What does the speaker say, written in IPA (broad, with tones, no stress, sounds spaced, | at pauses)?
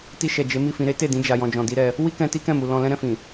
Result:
t i˧ ʃ ɛ˨ d͡ʒ e˨˦ m i˦˨ f ĩ˧ ɾ e˦ t e˦˨ d ĩ˧ d͡ʒ a˨ j ɔ̃˨ d͡ʒ ɔ̃˨ d i˨˦ ɾ ɛ˧ | w i˦ k ɛ̃˧ t i˦ k ɛ̃˦˨ m u˨ l ɔ̃˧ l ɛ̃˦ ɾ ɛ̃˧ f ĩ˨